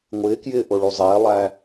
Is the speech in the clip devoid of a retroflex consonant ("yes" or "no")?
no